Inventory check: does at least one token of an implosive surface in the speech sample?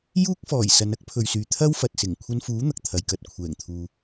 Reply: no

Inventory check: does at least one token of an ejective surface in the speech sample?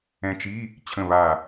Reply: no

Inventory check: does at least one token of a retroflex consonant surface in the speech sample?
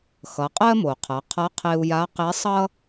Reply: no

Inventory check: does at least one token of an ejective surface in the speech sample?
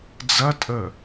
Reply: yes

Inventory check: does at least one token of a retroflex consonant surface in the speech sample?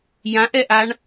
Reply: yes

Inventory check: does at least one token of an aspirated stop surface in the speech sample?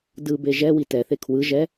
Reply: yes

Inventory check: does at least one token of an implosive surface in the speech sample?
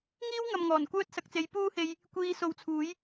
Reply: no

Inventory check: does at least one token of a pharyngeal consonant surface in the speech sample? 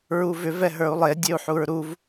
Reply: yes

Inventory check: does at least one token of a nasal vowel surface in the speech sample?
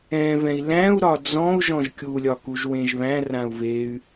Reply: yes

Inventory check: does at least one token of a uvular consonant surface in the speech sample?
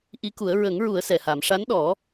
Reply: no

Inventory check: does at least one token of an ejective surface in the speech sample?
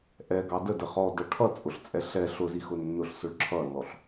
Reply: yes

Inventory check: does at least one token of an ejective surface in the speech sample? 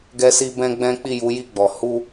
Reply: no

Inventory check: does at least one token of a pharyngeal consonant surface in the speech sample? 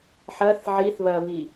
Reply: yes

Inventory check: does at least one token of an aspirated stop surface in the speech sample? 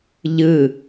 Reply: no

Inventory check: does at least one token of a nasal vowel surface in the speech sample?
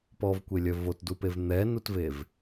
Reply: no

